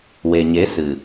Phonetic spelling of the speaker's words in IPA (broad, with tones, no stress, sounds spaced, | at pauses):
w e˨ ɲ e˨˦ s ɨ˨